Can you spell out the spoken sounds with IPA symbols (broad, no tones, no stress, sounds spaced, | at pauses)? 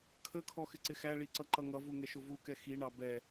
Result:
kʰ ə kʰ ɔ x ɪ ǀ ɪ x æ ɭ i ǀ ʌ ǃ ʌ ŋ ʌ v u ŋ ɛ ʃ ʊ v u k ɛ x i ɳ ɑ b ɛ